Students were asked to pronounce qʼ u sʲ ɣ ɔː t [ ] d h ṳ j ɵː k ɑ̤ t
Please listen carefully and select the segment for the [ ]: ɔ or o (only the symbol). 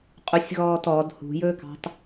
ɔ